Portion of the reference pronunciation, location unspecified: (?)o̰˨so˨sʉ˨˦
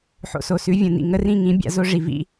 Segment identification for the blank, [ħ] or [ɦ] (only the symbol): ħ